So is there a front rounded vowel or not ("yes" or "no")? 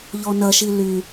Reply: yes